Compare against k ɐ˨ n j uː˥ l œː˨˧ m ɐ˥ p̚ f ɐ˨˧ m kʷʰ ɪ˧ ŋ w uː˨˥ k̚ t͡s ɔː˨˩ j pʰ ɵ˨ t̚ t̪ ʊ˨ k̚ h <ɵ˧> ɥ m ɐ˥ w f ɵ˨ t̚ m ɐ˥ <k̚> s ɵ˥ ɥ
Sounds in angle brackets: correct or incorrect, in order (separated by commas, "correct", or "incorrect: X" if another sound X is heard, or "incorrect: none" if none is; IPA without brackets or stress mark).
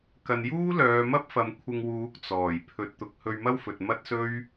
correct, incorrect: t̚